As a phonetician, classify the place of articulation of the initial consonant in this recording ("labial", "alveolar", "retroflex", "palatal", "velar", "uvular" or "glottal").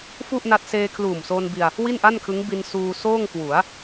labial